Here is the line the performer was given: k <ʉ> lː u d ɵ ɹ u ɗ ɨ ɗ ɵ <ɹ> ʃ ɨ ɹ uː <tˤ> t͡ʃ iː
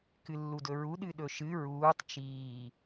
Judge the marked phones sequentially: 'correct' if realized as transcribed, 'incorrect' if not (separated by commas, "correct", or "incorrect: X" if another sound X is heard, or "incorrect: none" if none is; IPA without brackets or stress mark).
incorrect: ɨ, incorrect: none, correct